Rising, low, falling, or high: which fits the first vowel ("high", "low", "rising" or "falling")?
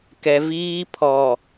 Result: high